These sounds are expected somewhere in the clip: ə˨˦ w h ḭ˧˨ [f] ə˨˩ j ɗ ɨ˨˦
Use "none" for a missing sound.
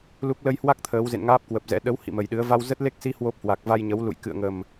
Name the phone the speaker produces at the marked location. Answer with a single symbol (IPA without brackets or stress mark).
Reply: m